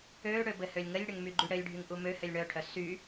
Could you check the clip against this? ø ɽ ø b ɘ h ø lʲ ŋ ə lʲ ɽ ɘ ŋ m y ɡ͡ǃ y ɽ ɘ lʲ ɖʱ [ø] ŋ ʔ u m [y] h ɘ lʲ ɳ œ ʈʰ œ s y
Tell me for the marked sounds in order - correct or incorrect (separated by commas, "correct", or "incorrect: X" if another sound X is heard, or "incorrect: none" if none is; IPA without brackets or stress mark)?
incorrect: y, incorrect: ø